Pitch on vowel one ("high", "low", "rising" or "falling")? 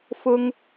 high